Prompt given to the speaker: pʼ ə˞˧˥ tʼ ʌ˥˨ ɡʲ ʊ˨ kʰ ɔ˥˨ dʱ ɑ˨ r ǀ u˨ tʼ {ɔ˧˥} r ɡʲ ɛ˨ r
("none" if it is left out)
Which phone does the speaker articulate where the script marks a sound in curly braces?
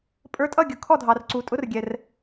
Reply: ʊ˧˥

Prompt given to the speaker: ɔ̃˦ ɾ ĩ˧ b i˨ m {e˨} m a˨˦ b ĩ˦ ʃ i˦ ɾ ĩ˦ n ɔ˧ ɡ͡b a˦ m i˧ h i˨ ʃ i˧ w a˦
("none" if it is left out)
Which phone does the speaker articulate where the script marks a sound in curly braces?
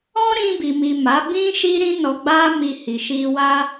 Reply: i˨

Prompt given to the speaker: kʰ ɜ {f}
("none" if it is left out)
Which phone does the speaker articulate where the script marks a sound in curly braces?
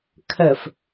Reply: f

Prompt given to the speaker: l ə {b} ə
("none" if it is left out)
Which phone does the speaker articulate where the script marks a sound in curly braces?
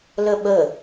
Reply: ɓ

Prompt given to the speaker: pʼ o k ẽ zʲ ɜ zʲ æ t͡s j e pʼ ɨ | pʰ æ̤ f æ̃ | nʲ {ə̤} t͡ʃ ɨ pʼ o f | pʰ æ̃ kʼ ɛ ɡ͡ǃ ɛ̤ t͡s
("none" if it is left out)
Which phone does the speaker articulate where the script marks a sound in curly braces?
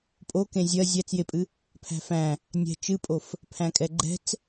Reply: ɛ̤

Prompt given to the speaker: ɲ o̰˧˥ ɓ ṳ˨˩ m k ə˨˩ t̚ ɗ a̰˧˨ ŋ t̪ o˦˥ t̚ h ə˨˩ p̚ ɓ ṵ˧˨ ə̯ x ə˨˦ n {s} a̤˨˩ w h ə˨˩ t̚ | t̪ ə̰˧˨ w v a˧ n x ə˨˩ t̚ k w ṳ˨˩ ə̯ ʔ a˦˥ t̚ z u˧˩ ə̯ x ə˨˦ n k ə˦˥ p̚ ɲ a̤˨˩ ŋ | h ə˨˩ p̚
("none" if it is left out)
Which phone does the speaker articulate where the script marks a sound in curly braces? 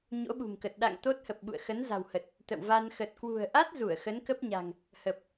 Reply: z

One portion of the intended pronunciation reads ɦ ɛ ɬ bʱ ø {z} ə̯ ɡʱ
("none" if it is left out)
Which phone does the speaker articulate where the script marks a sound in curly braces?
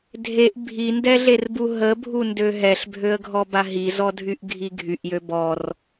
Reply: none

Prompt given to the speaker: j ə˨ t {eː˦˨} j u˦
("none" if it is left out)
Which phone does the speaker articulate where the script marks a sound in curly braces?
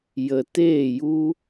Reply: eː˦˨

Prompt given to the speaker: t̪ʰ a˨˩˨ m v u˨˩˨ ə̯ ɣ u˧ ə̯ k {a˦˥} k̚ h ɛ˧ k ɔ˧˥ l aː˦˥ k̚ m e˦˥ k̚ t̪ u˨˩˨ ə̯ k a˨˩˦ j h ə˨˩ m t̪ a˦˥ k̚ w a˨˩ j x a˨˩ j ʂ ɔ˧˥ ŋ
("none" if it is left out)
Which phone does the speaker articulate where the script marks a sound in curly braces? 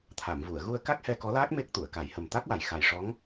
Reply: a˦˥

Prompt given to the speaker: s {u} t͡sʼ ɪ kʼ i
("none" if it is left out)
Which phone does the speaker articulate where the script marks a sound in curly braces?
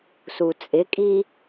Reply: u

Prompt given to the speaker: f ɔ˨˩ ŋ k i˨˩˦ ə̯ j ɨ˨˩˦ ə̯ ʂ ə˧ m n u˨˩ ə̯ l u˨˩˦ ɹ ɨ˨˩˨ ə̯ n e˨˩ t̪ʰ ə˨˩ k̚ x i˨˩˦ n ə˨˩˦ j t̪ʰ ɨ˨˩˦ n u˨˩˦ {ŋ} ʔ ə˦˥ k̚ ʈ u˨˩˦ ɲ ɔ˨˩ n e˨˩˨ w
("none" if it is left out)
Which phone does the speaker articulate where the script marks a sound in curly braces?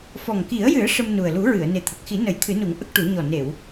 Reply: ŋ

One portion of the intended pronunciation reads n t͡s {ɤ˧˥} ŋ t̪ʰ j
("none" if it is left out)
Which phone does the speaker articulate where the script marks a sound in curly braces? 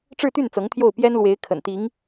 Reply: ɤ˧˥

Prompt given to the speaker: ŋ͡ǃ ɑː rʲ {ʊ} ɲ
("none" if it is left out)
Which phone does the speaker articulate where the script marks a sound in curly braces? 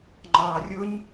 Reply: ʊ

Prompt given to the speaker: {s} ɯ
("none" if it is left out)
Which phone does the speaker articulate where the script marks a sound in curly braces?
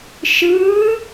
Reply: ʃ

